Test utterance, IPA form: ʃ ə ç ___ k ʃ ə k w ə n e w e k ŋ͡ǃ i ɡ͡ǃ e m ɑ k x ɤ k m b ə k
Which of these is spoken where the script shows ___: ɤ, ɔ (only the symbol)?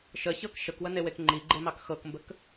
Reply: ɤ